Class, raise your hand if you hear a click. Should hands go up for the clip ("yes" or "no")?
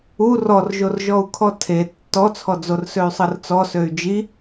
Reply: no